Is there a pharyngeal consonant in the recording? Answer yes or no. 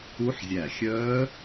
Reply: yes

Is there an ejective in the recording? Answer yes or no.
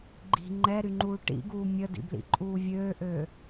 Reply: yes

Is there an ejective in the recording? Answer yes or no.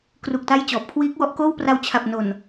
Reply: no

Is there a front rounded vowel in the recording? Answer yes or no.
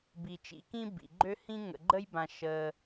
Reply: yes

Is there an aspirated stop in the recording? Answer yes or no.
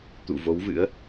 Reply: no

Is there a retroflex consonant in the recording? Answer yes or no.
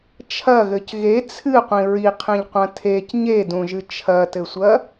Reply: no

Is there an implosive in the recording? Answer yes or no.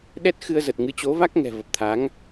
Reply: yes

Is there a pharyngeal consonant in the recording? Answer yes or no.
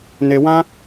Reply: no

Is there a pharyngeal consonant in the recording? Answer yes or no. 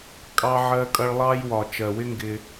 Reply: yes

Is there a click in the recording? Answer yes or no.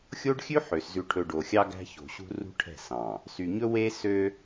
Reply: no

